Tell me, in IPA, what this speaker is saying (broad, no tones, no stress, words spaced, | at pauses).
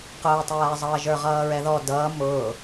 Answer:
qʊːtˤæːzˤʌːʒə˞ ʁʌːɹɛðɔ dʌː mʊː